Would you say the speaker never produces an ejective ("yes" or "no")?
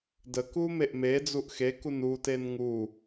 yes